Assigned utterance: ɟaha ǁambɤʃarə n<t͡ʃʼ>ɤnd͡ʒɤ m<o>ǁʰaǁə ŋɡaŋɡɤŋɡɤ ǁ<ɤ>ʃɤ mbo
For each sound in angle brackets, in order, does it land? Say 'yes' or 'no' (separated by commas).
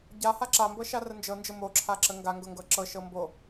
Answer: no, yes, yes